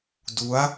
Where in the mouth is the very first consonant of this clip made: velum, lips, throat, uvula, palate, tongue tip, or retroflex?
tongue tip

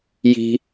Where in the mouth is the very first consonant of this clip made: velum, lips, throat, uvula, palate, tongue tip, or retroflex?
palate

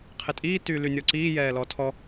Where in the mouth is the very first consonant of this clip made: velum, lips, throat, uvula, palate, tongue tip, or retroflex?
uvula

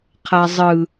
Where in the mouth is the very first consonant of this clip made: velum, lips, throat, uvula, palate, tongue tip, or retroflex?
uvula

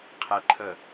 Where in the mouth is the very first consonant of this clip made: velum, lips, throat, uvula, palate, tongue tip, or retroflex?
uvula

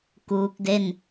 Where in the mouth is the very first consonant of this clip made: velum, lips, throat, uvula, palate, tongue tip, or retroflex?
velum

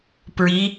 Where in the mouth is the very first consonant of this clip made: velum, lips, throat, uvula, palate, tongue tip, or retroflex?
lips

